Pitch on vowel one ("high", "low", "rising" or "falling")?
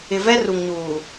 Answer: low